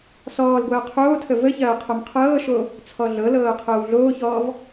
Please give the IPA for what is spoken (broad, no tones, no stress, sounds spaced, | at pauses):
s ɔː l ɡʷ ɐː qʰ oː tʰ ə v ə ç ɐː qʰ ɐ m qʰ ɤː ʃ o | t͡sʰ ɔ ɮ ɤ l ɤː qʰ ɤː w ɮ oː ç ɔː v